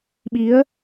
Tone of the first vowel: rising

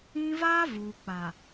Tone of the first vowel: high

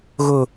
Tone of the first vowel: falling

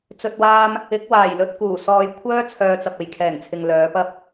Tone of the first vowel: low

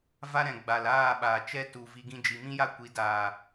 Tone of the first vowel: high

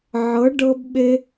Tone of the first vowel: rising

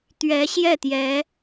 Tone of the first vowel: rising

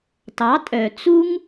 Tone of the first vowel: rising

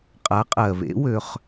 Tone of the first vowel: rising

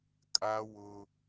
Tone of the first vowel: high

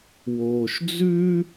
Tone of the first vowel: low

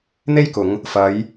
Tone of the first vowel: high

